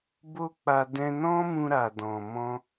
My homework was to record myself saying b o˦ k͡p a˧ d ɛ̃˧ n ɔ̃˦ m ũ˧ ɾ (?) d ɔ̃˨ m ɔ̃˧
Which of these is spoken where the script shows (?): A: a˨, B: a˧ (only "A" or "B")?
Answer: A